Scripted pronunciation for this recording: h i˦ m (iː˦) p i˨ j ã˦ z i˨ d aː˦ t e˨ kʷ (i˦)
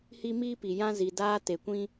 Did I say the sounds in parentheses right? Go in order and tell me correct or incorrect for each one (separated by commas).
correct, incorrect